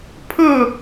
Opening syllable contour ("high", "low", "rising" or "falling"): falling